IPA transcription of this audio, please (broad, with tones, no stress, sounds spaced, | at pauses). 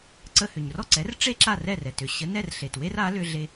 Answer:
ǀ ə˧ h ʏ˩ ɲ r ɔ˥˩ ǀ ɛ˩˥ r ʈ͡ʂ e˥ ǁ a˥˩ r ɛ˥˩ r ɛ˩ t ʏ˩ ɕ ə˩˥ n ɛ˥˩ r ɬ e˩ t w e˥ r a˩˥ l ʏ˧ ɮ e˧